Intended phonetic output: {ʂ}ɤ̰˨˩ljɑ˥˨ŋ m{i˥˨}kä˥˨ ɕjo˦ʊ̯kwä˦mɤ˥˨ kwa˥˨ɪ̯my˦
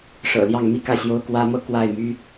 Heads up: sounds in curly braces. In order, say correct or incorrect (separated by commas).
correct, correct